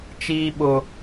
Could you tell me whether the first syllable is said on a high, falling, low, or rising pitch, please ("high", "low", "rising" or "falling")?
high